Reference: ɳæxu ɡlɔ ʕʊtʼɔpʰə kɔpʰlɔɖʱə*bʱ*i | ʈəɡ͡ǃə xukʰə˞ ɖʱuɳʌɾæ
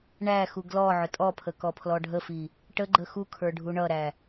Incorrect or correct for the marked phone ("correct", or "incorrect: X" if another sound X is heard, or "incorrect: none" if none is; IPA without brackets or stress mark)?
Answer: incorrect: f